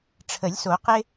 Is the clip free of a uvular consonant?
no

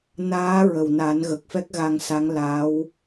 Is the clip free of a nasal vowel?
yes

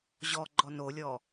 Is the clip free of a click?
no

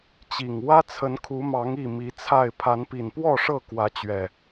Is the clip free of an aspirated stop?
no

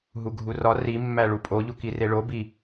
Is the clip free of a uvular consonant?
yes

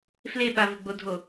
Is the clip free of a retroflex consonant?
yes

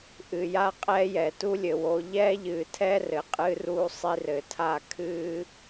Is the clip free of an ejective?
no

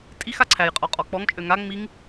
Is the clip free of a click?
no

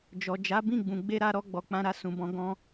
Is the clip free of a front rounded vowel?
yes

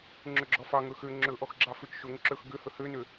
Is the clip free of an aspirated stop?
yes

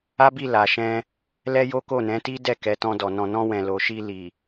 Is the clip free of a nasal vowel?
no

